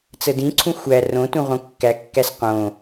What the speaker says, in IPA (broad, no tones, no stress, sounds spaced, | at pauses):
t͡s ə d ĩ ǀʰ ũ xʷ æ r õ t ũ ʁ õ kː æ kː æ s q õ